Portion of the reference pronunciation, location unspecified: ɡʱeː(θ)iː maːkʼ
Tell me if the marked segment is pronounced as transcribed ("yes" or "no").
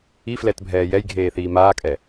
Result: yes